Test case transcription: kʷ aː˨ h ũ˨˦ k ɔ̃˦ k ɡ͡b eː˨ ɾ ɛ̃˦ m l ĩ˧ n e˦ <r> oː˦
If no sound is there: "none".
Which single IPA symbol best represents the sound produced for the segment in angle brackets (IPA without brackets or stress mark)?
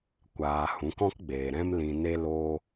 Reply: l